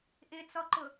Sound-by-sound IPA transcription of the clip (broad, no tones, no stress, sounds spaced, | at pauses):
ʔ ɪ t͡s ɔ ǃ ʊ